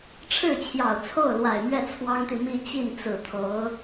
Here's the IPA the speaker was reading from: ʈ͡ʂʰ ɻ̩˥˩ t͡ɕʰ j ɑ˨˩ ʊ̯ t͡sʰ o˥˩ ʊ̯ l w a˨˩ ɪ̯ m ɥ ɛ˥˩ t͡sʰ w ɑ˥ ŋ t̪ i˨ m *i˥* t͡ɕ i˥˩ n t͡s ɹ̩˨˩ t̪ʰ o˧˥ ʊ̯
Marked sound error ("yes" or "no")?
yes